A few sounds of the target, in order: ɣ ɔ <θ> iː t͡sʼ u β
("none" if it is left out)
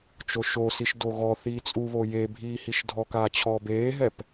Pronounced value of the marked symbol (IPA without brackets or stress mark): θ